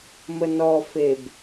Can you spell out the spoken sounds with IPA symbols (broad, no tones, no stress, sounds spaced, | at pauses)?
m ə n ɔ f e b